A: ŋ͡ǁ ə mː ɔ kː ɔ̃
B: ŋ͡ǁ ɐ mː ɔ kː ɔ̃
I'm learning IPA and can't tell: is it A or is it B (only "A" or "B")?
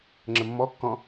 A